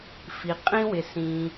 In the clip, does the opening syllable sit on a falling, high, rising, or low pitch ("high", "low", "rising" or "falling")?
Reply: low